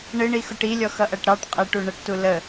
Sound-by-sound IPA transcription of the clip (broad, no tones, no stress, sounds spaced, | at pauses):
ɳ ɪ ɳ i x ʊ ʈ i lʲ ɔ x ʌ ʔ æ ʈ ɾ ɑ ʈ qʼ ɛ ʈ u ɳ ə ʈ t u l ə